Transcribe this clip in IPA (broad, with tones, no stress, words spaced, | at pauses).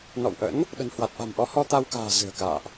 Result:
nɔ̰˧˨wʔə̰˧˥n | ɗə̤˨˩nhwa˨˩t̚ʔa̤˨˩mʔɔ˨˦ hɔ˧t̪a˧wka̤ː˨˩ zɨ̤˨˩ə̯ka̰ː˧˨ʔ